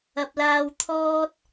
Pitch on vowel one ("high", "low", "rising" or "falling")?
low